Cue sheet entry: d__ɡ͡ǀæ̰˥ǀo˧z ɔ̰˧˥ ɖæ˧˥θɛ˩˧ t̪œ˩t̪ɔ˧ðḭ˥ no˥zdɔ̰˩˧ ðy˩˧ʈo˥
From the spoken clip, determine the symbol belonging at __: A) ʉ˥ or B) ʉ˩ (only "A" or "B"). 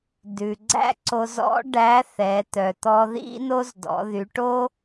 B